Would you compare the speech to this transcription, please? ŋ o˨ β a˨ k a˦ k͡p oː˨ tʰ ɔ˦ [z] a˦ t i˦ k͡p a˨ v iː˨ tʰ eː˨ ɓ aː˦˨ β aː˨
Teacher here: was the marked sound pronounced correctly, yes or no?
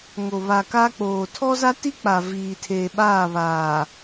yes